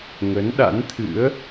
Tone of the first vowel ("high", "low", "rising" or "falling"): rising